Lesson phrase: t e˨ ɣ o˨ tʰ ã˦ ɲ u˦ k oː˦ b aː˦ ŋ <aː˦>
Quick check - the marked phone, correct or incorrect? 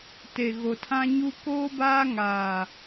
incorrect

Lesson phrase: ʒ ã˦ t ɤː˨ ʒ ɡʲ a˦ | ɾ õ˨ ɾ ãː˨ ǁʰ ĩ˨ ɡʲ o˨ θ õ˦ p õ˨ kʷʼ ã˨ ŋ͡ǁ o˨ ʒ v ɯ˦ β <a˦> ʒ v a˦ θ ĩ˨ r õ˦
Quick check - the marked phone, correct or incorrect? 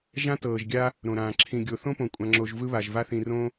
incorrect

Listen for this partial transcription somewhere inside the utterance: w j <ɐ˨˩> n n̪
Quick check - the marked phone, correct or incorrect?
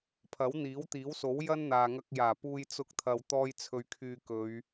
incorrect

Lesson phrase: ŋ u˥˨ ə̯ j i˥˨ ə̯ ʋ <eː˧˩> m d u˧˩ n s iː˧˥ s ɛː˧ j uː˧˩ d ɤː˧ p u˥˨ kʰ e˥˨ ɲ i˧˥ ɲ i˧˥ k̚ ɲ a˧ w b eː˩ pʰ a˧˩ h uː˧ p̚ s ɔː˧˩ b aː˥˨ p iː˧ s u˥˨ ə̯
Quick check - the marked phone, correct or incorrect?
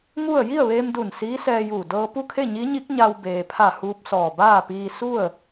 incorrect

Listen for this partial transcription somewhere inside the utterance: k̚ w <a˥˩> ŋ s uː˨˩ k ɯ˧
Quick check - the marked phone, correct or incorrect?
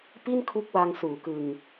incorrect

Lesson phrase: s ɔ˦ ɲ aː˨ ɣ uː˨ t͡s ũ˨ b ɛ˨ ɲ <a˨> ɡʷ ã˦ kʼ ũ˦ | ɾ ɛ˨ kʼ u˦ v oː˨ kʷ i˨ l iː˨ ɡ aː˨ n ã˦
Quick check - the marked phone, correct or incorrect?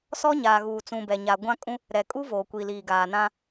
correct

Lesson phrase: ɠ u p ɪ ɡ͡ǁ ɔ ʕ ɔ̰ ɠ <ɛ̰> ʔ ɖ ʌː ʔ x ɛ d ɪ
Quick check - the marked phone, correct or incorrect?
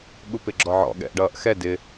correct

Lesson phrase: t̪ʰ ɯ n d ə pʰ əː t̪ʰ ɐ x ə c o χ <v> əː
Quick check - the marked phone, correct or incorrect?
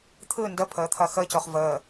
correct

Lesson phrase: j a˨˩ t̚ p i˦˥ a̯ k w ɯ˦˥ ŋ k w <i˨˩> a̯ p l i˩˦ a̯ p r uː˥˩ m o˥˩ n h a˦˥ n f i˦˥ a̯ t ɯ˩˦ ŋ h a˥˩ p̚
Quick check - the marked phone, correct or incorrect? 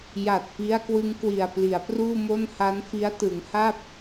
correct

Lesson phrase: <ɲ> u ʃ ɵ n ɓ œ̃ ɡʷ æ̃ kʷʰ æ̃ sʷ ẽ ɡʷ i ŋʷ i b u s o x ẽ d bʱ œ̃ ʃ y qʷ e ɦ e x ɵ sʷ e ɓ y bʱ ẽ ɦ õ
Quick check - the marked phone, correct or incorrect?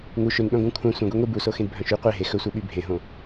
incorrect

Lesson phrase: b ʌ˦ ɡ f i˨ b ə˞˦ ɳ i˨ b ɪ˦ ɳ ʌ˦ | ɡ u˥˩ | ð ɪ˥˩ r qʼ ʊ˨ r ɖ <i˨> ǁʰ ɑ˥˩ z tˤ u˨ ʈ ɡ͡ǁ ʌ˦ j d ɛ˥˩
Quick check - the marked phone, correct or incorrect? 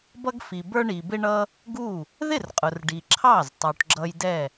correct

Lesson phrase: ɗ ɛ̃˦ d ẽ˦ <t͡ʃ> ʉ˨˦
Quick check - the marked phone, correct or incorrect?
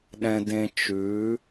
correct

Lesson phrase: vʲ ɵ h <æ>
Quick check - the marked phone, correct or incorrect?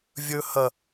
incorrect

